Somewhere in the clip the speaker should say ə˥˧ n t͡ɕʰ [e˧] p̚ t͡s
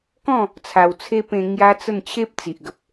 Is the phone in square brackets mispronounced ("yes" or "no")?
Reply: yes